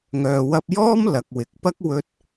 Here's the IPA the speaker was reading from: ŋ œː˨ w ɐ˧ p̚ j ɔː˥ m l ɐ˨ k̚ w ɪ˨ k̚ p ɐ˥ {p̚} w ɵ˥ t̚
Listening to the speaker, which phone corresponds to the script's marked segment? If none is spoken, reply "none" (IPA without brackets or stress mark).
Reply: k̚